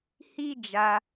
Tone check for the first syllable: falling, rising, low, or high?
high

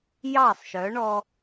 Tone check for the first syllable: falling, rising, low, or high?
falling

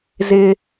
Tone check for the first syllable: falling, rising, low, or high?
high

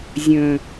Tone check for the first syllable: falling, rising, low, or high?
low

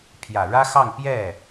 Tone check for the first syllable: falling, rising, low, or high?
low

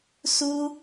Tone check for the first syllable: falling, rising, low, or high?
high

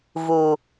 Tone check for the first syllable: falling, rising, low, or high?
low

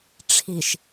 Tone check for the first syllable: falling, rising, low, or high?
low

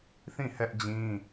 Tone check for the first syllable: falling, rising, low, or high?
falling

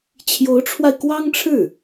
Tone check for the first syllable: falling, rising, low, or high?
rising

